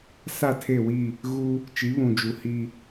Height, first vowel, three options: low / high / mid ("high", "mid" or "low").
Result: low